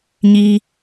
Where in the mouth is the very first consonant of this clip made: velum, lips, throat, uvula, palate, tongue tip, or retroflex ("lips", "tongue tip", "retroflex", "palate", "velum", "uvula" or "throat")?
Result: palate